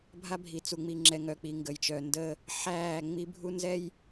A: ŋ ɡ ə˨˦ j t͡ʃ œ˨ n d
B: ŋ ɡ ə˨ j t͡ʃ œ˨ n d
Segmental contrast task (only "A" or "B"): B